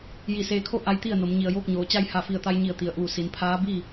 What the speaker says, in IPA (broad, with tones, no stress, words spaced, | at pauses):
ji˧˩ seː˧kʰo˥˨ ʔa˧˥jt̪i˥˨ə̯no˩˧m ɲi˩ə̯joː˥˨k̚ɲoː˩˧ t͡ɕa˧jha˧˩fi˧˩ə̯t̪a˧j ɲi˧˩ə̯t̪i˩ə̯ʔuː˧˩ si˩˧npʰaː˧˥bi˥˨